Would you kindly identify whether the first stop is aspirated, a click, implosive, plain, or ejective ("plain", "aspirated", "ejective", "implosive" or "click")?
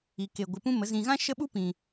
plain